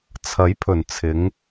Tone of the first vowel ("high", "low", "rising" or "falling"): rising